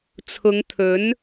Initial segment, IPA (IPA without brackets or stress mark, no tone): t͡sʰ